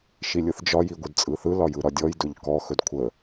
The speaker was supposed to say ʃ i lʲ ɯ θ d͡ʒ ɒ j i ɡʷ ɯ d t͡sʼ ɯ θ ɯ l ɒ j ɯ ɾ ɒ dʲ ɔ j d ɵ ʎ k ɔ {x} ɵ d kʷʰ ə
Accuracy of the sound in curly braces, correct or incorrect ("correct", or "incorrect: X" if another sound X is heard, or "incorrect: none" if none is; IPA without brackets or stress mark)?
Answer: correct